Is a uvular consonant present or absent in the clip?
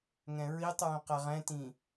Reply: present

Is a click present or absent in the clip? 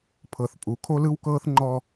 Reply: present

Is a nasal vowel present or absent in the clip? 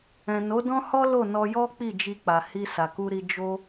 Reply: present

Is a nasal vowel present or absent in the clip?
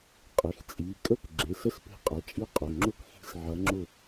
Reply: absent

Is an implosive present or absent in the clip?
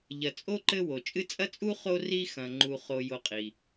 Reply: absent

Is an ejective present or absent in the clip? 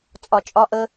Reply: present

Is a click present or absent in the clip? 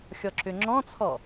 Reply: present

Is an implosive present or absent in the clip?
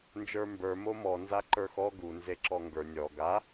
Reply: absent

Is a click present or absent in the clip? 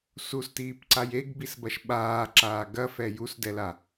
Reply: present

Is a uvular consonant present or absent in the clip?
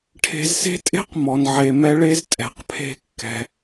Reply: present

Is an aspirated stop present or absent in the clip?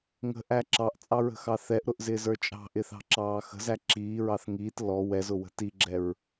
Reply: absent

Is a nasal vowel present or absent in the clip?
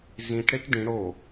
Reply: present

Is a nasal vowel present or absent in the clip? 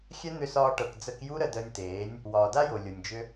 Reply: absent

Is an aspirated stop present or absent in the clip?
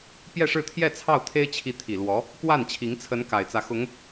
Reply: present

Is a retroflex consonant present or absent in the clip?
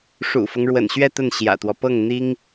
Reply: present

